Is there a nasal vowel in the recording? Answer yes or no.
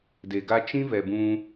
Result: yes